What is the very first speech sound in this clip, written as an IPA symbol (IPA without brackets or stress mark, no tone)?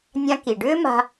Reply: nʲ